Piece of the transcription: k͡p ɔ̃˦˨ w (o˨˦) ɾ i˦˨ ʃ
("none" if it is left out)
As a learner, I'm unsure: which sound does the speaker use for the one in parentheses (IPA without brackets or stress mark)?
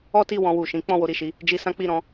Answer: o˨˦